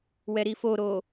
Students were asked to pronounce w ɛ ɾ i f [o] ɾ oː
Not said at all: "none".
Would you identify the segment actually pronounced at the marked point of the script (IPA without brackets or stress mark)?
o